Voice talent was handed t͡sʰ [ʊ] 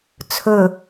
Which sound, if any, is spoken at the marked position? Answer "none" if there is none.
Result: ɵ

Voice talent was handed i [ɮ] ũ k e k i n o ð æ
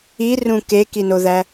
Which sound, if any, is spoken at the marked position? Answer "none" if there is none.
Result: r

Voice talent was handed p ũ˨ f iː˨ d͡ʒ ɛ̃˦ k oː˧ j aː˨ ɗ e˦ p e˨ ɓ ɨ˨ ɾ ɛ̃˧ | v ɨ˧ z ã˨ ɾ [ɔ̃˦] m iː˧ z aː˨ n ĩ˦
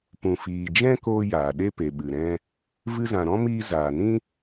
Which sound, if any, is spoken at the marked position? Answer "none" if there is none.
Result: ɔ̃˦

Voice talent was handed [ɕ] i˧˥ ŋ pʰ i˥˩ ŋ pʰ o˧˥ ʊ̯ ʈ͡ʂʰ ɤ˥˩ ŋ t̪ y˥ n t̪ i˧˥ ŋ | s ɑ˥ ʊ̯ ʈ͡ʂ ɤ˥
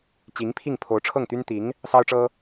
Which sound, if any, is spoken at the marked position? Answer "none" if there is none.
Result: t͡ɕ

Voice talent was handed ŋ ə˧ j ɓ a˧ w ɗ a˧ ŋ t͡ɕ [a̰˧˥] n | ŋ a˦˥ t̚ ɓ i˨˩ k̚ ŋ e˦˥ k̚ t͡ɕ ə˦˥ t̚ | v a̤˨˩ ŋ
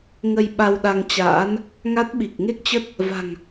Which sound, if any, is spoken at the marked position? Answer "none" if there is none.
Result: a̰ː˧˥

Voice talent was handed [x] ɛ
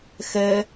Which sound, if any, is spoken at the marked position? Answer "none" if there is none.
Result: x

